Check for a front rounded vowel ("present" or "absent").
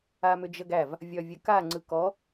present